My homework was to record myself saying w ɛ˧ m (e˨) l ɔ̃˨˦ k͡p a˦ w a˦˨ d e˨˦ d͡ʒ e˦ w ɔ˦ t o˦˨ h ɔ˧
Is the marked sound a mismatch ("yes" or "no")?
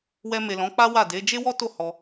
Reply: no